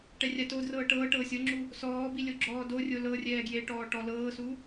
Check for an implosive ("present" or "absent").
absent